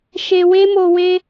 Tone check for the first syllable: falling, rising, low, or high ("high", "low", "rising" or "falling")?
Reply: low